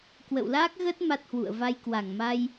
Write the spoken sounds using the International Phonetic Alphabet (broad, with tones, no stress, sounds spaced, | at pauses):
k w ə̰˧˨ w l aː˦˥ k̚ ɣ ə˦˥ t̚ m a˦˥ t̚ h w ṵ˧˨ ə̯ v a˧ j k w a˧˩ ŋ m a˧ j